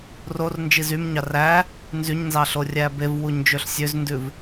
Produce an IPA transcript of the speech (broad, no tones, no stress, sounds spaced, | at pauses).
r o r n d͡ʒ i z y m ɲ ɑ r æ | n z y ɲ n z ɑ ɬ o rʲ æ b e v w u ɲ d͡ʒ ø ɬ sʲ ø z n d ʉ v